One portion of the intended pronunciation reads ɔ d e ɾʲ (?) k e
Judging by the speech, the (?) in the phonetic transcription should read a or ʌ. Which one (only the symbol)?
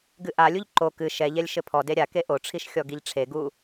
a